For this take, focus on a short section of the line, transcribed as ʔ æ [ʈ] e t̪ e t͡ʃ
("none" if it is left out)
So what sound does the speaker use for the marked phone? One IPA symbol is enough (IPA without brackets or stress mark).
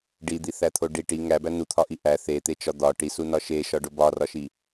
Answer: θ